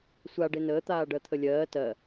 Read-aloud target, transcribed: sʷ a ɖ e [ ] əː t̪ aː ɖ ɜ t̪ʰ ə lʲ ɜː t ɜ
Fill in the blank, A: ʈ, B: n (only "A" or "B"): B